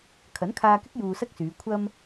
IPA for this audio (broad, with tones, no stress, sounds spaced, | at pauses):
kʰ ɐ˨˥ n kʰ aː˧ k ɪ˥ k̚ j uː˧ s ɐ˥ k̚ s yː˨˧ kʷʰ ɐ˧ m